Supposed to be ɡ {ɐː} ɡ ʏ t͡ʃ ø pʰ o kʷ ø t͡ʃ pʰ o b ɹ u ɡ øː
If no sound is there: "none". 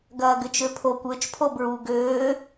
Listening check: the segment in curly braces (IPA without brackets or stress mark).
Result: ɐː